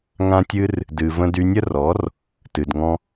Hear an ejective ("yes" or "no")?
no